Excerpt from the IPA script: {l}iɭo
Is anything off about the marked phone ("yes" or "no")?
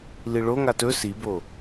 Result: no